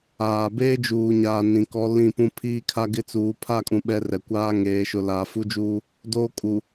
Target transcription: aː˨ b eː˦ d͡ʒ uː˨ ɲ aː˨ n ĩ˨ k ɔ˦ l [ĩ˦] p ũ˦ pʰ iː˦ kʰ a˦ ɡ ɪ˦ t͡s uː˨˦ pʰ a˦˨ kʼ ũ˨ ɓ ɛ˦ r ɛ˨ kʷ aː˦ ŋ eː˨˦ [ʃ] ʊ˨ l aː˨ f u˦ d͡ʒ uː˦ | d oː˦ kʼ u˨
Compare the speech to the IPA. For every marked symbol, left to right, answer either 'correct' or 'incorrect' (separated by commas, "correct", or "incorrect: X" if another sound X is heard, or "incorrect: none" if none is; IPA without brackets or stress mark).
incorrect: ĩ˦˨, correct